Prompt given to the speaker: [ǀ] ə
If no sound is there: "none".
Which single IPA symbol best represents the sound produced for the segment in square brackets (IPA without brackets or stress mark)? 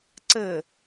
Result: ǀ